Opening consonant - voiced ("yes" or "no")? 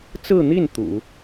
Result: no